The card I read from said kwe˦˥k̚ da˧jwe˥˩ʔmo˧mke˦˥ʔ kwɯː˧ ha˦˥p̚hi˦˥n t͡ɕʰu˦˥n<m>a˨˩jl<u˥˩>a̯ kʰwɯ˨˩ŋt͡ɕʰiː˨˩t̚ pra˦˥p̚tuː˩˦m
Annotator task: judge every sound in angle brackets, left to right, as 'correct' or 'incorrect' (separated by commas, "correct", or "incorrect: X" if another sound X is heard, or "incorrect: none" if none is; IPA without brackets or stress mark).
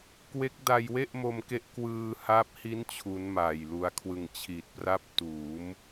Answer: correct, incorrect: u˧